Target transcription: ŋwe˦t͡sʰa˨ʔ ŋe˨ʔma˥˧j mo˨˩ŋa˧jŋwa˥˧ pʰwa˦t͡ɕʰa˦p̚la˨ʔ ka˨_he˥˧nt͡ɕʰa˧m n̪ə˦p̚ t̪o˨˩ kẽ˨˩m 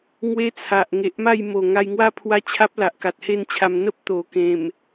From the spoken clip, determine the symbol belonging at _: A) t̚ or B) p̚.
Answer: A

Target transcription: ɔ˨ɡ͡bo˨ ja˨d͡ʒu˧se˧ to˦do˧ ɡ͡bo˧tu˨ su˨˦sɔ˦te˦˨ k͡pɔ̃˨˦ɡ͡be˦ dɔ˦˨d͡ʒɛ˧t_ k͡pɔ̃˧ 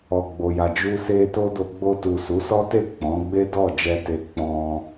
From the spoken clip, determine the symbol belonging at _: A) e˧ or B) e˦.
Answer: A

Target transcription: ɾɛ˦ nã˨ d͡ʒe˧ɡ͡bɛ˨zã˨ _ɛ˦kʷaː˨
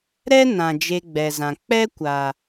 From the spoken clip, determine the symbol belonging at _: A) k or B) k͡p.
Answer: B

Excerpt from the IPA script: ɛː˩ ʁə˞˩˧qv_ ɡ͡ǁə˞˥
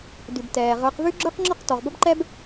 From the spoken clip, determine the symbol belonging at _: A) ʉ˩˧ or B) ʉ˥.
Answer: B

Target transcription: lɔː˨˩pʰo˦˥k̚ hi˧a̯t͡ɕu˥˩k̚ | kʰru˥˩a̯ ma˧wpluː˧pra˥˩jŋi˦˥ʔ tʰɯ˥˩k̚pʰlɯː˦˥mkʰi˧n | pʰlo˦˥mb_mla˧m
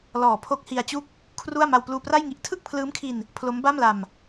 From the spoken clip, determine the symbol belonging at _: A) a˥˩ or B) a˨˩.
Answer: A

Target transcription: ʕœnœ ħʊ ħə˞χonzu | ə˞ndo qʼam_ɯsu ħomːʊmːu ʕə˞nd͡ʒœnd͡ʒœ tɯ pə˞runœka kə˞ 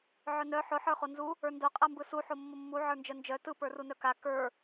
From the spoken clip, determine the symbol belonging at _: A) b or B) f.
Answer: A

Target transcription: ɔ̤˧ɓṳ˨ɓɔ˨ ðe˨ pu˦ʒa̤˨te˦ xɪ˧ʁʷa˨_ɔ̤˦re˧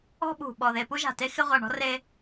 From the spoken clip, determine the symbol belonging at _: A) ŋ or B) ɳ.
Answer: B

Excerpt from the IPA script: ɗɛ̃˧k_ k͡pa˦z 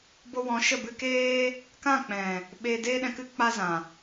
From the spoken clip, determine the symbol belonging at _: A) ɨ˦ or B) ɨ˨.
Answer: A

